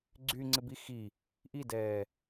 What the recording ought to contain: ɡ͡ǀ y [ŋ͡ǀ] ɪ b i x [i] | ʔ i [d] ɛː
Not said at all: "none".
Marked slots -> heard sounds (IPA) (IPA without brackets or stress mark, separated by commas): ŋ͡ǀ, i, d